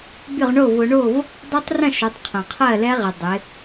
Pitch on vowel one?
falling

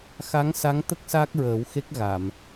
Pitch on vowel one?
rising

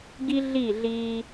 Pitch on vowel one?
high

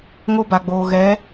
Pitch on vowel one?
high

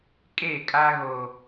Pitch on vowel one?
falling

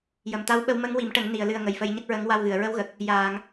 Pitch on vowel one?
low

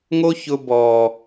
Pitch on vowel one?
high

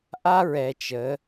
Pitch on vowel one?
high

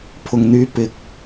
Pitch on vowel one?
low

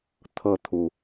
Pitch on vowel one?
falling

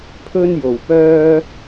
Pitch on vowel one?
high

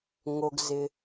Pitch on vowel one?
low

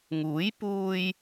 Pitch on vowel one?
rising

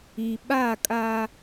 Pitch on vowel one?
low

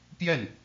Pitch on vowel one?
falling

